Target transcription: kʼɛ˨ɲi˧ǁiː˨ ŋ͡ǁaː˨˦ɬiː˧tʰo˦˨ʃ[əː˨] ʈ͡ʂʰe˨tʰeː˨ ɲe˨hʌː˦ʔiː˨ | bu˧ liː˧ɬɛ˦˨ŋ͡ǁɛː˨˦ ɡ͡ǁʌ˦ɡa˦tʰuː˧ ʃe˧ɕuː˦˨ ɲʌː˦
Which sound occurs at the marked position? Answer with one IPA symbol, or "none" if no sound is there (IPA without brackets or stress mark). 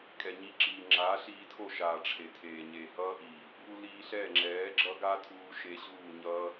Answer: aː˨